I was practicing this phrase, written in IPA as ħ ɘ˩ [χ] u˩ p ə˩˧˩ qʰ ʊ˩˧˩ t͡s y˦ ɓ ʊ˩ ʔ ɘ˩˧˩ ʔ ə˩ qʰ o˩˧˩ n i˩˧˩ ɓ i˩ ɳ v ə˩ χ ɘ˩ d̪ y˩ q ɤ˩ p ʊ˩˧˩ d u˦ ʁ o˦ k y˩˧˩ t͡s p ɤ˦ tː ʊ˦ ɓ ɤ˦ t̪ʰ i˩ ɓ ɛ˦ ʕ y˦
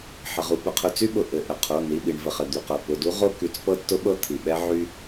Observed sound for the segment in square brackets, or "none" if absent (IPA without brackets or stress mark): ʁ